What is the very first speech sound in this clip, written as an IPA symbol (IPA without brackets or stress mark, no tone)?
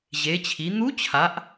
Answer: ʑ